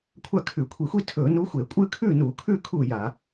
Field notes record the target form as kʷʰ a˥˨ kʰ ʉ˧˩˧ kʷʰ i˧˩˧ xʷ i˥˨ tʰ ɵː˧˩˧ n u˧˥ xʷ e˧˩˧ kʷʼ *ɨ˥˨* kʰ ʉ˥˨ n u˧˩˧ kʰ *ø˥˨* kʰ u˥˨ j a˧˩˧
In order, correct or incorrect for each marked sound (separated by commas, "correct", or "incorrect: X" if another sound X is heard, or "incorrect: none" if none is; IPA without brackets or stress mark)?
correct, incorrect: ʉ˥˨